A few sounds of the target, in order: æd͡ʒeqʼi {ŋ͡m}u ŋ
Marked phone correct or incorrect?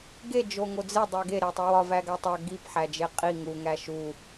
incorrect: ŋ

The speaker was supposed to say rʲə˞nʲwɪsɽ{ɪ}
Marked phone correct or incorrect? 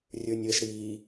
incorrect: i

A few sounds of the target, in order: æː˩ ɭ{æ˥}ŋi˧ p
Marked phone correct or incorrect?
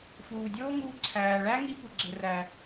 correct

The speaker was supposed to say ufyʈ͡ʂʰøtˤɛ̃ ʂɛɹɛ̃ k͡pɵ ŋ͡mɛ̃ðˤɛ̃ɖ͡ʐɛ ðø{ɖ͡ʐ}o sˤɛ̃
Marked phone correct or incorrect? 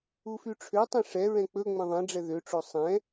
incorrect: ʈ͡ʂ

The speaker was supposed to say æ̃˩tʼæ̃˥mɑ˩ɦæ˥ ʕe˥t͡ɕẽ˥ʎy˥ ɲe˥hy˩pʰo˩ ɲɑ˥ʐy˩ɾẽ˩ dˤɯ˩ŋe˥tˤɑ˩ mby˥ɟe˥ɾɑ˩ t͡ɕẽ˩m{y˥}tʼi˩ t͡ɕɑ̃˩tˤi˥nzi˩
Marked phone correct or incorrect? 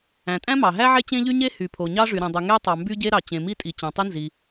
incorrect: i˥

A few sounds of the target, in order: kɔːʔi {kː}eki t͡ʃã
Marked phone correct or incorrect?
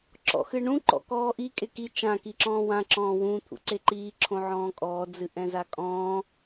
incorrect: kʼ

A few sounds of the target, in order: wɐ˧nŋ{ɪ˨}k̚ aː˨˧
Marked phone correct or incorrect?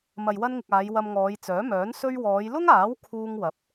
correct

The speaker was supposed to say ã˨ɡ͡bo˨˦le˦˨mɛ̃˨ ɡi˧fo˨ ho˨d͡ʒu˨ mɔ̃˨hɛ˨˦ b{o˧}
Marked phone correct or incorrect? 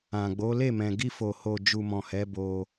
correct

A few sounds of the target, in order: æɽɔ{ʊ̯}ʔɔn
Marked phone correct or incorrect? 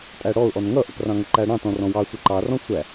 correct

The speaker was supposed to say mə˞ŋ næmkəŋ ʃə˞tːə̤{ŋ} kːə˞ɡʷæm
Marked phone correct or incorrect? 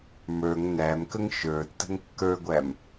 correct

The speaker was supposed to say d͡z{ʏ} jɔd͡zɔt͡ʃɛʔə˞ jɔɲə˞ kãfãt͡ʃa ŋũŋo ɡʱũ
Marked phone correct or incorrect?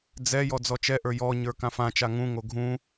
incorrect: ɛ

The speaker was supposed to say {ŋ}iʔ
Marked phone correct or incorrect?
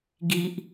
incorrect: ɡ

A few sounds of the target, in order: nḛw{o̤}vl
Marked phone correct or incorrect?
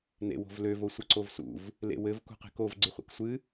correct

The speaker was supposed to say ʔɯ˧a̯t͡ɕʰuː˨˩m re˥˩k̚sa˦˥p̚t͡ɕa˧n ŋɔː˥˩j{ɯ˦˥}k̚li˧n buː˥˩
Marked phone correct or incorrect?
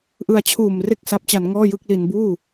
incorrect: ɯ˥˩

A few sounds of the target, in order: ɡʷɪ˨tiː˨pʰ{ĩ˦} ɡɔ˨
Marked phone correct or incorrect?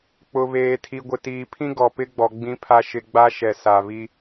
correct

